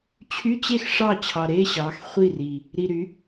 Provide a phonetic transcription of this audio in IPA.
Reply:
t͡ɕʰ y˧˥˧ t͡ɕ e˥˩ x ʂ ɑ˥˩ t͡ɕʰ ɑ˨˩ ɾ e˧˥˧ ɕ ɑ˩˥ x χʷ i˥˩ r i˨˩ | ɾ i˨˩ ɾ y˩˥

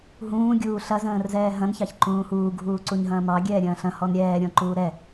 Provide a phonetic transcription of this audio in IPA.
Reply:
ɦ ũː ɡʲ uː ɬ ɐ z ə̃ː r z ɛː ɦ ɐ̃ n ç ɑ ç ǃ ũː h uː ɡʱ uː ǀ u ɲ ɦ ɐ̃ː m ɑ ɡʲ ɛː ɾʲ ɐ̃ː ɬ ɐ̃ h ɔ n ɾʲ ɛː ɾʲ ɔ̃ ǃ uː ɾ ɛ

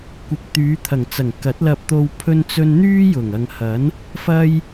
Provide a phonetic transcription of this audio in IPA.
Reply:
kʷ ɪ˨ k̚ t̪ yː˨˧ t̪ʰ ɐ˨˩ ŋ t͡s ɐ˨˩ ŋ k ɐ˨˥ t̚ l ɐ˧ p̚ t̪ o˧ w pʰ ɵ˥ n t͡s ɵ˥ n n̪ yː˥ j ʊ˨˩ ŋ ɐ˨ ŋ h ɐ˨˥ n | f ɐ˥ j

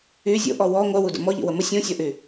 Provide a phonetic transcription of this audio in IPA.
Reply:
y zʲ o̰ ʔ ɔ w ɔ ŋʷ œ w u d ə̰ m ɔ ʎ ḭ w ə m ə sʲ õ sʲ ɔ ʔ y

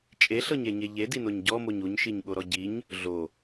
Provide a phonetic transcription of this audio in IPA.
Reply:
t͡ʃʼ e ɬ ɤ ɲ e ɲ e ʎ e d i n o ɲ ɟ ɔ m o ɲ u ɲ ʃ i ɲ ɠ o ɾ ɔ ɟ i ɲ | ɮ o

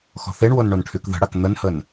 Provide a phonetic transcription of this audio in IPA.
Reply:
x ɔ̤ θ e ɳ w o n ɳ o n ʈʰ y k ð ə̤ ɽ a k n̪ ə n h ə n

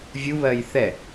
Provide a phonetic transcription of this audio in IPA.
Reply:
vʲ u β ɜ j θ ɛ

